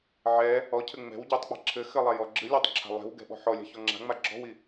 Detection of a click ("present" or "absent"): present